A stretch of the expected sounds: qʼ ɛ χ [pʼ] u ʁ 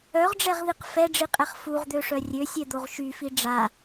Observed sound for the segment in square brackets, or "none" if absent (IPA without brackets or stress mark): f